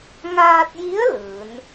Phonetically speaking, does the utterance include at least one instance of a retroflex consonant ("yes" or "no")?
no